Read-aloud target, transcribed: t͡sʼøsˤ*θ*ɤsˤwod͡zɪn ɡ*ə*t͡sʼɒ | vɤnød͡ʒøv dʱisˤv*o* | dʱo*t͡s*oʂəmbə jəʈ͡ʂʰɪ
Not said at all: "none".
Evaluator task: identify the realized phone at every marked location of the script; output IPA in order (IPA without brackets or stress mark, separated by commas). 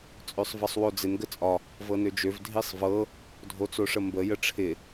v, ə, ɤ, t͡s